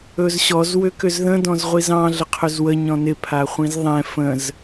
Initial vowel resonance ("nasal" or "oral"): oral